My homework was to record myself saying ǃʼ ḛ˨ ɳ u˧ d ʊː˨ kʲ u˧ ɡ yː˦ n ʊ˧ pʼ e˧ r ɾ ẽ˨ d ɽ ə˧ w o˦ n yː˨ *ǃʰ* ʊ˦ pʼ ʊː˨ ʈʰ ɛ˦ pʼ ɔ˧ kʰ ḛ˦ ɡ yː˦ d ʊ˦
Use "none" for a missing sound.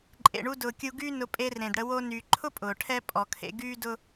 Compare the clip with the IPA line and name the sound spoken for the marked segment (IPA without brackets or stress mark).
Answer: ǃʰ